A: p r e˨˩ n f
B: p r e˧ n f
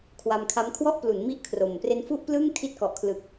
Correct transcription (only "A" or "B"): B